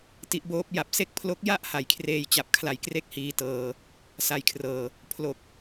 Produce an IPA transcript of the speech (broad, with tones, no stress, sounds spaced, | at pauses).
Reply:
t i˦˥ ʔ b oː˦˥ p̚ j a˨˩ p̚ s e˥˩ k̚ pʰ l o˦˥ k̚ j a˥˩ ʔ h a˨˩ j kʰ r eː˧ j t͡ɕ a˨˩ p̚ kʰ l a˧ j k r e˥˩ k̚ h iː˧ t ɤː˧ | s a˧ j kʰ r ɤː˧ | pʰ l o˨˩ k̚